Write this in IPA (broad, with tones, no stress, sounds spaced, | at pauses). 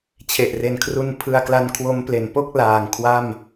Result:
t͡ɕʰ e˨˩ ʔ r e˨˩ n kʰ r u˧ n pʰ ɯ˧ a̯ k l a˦˥ n kʰ w o˦˥ m p l e˩˦ n p o˥˩ k̚ l aː˨˩ ŋ kʰ w a˥˩ m